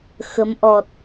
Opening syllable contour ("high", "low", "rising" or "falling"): rising